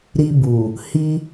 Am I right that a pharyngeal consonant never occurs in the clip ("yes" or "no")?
yes